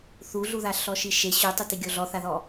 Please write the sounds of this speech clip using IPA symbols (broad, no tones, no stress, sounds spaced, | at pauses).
θ u ɮ u ð a ɬ ɔ ʃ i ʃ e ɕ u tˤ ɯ t i ɡʲ o ɮ ɔ θ a ð ɔ